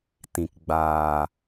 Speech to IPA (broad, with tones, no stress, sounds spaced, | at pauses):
t ĩ˨ k ɡ͡b aː˨